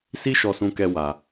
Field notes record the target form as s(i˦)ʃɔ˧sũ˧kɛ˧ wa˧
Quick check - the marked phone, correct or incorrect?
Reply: correct